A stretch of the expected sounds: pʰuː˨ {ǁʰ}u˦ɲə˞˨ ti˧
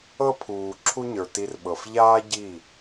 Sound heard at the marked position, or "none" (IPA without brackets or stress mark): ǁʰ